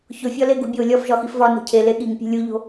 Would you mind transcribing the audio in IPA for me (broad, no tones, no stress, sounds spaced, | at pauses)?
ç o fʲ ɒ l e ɡ ṳ bʲ o lʲ ɒ f ʒ ɒ x i f v ɒ n o̤ cʰ e l e ɠ i ŋ pʲ e̤ lʲ u ʎ o̤